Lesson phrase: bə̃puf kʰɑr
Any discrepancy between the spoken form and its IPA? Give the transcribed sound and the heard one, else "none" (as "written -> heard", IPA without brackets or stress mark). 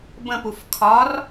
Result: ɑ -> ɒ